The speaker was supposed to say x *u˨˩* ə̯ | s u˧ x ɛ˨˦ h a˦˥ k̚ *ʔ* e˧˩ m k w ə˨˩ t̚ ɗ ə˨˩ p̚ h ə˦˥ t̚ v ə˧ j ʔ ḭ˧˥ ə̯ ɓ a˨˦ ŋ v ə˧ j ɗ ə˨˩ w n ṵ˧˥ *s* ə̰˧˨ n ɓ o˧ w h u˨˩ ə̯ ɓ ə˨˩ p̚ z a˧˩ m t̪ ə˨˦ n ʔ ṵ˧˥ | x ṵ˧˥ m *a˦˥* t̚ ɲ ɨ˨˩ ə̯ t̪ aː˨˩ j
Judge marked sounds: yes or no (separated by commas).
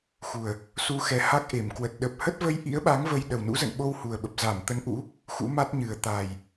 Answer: yes, yes, no, yes